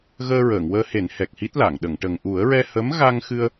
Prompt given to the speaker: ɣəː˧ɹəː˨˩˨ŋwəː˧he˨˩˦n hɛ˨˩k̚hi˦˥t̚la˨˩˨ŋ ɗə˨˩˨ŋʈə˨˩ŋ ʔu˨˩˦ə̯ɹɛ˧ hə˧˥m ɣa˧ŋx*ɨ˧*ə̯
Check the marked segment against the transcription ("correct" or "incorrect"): correct